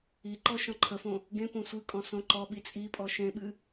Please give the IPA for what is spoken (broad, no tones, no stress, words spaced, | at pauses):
iǃɔ ʃɔ̃ǃʰəfõ | ɡẽpõ sʷɨkʼɔ̃ sõǃɔɓi t͡sʼipʼɔ ʃẽɓɨ